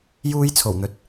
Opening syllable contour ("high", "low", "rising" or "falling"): high